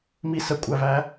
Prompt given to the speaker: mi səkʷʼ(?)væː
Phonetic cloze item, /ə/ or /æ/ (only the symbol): æ